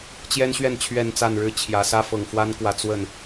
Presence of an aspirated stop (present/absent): present